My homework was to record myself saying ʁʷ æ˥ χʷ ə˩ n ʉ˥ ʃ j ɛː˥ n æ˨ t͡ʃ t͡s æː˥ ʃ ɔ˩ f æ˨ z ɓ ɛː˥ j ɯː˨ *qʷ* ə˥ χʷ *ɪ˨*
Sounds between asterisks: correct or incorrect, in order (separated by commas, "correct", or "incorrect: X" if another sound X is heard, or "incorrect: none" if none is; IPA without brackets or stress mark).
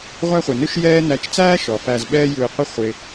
correct, correct